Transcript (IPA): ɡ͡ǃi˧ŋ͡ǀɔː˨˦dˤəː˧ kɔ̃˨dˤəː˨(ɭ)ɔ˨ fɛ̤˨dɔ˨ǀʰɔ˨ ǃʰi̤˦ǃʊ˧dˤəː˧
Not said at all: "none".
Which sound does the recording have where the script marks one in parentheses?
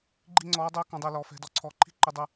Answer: l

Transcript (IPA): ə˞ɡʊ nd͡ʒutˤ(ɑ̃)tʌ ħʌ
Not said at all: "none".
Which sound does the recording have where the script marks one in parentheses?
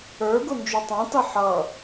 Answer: ɑ̃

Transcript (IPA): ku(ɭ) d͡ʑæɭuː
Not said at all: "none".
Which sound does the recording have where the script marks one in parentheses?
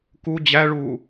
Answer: none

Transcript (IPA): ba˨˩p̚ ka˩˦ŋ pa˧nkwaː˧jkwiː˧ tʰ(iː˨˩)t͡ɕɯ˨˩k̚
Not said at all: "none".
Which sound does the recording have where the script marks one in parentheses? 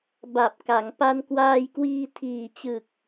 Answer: iː˨˩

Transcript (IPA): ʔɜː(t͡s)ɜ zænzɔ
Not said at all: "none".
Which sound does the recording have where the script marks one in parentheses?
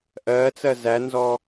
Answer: t͡s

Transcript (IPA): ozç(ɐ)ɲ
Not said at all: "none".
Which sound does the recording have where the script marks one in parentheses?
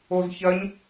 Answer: ɐ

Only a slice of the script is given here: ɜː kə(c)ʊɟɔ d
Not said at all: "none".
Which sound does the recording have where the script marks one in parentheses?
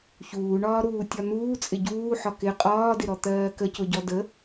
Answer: c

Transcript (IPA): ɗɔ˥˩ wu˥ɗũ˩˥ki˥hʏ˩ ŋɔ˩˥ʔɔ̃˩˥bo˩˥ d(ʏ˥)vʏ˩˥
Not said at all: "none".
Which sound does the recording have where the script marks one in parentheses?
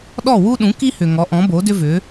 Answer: ʏ˥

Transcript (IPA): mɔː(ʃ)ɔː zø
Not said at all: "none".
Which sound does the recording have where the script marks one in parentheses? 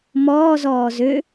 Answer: z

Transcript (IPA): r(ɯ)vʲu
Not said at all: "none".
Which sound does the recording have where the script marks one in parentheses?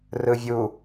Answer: ɯ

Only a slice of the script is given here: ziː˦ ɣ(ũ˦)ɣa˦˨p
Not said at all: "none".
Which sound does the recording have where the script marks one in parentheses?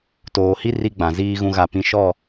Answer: ũ˦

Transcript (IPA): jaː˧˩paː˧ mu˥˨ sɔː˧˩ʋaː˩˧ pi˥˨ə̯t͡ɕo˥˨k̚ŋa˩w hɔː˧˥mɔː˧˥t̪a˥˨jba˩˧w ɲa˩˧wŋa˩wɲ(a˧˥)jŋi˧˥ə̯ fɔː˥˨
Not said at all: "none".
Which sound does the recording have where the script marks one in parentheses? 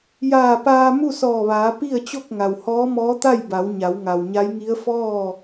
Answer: a˧˥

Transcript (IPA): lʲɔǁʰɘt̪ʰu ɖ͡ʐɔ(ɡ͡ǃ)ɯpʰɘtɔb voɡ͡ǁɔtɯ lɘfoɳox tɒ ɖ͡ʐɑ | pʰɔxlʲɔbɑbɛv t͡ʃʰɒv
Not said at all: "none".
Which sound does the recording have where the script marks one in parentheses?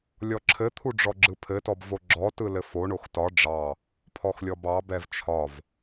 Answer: ɡ͡ǁ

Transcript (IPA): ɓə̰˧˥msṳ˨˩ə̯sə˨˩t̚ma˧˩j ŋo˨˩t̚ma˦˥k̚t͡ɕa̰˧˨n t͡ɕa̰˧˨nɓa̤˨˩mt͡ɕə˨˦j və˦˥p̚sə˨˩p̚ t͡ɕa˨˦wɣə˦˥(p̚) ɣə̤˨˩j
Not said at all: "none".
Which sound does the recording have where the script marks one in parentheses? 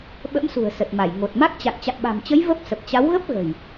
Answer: p̚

